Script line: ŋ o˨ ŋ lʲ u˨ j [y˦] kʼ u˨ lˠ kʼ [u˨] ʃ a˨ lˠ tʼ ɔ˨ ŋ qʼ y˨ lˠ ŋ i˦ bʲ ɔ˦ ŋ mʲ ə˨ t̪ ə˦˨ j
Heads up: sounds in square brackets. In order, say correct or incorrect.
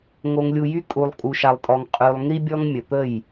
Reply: correct, correct

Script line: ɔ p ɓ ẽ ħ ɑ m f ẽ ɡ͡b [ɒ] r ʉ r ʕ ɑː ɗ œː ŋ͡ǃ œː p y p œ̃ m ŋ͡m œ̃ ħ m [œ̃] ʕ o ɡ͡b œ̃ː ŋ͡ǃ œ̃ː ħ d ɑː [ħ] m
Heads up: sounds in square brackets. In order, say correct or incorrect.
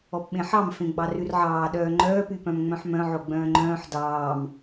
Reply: incorrect: ɑ, correct, incorrect: none

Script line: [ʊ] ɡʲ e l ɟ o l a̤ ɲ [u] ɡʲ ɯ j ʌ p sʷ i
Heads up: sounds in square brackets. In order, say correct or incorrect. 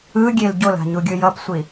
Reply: incorrect: ɯ, correct

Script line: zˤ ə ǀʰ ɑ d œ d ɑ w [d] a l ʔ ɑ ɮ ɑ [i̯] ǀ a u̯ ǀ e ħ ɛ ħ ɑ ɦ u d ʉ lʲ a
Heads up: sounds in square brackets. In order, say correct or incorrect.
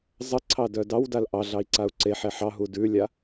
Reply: correct, correct

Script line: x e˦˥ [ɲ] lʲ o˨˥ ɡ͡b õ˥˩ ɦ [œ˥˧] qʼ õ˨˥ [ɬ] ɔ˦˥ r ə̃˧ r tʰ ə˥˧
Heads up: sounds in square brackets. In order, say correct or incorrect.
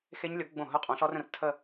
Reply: correct, correct, correct

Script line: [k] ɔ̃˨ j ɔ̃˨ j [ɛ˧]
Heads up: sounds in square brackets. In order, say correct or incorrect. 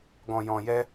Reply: incorrect: ɡ, correct

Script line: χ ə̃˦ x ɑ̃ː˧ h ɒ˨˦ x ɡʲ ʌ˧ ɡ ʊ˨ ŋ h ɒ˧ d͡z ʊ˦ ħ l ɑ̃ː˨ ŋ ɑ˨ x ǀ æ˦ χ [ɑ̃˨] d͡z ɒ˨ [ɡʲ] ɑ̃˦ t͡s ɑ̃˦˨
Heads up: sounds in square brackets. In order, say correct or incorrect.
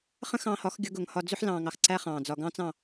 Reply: incorrect: ɑ̃ː˨, incorrect: ɡ

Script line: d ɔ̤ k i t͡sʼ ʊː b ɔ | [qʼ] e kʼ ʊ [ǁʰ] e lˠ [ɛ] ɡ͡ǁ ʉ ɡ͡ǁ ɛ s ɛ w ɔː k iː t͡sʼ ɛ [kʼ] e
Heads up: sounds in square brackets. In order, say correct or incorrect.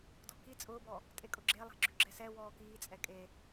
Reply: incorrect: tʼ, incorrect: ɡ͡ǁ, incorrect: ɛ̤, correct

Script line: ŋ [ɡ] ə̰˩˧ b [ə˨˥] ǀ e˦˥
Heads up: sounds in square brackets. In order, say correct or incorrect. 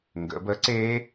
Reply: correct, correct

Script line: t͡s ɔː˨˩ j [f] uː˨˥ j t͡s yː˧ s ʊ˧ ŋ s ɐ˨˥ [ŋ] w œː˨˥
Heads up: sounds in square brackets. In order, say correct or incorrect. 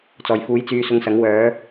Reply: correct, correct

